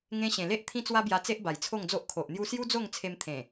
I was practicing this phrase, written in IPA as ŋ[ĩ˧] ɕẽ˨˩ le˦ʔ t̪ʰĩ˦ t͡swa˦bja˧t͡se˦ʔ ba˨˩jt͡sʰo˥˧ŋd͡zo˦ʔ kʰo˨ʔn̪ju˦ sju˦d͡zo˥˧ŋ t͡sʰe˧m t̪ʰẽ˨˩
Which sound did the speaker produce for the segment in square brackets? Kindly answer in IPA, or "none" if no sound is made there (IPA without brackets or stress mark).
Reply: ẽ˧